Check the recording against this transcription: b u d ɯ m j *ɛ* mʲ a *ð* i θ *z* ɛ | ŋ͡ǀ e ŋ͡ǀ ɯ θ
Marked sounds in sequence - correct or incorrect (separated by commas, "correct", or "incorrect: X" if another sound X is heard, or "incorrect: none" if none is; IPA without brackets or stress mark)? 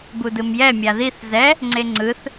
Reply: correct, correct, correct